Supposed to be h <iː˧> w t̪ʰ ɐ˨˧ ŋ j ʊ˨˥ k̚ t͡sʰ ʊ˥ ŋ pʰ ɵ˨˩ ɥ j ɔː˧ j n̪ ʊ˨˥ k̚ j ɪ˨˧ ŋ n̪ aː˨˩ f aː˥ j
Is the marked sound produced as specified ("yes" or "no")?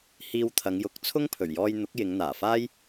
yes